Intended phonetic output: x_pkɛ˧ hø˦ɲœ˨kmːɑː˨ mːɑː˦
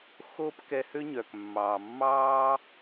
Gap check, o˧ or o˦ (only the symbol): o˦